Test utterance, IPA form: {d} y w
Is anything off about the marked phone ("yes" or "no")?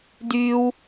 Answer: no